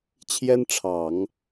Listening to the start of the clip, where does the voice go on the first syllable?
high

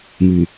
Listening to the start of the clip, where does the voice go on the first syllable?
low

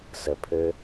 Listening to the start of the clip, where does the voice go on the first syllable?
low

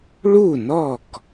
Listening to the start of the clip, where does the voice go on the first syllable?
falling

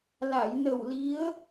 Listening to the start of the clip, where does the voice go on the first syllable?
low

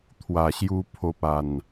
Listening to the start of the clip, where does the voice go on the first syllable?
low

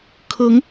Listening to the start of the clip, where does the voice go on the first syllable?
rising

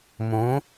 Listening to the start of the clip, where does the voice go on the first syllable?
rising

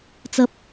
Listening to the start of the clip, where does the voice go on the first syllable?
high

